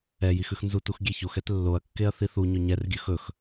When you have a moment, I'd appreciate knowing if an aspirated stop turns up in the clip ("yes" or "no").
no